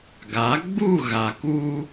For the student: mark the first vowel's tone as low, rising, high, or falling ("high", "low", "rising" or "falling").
rising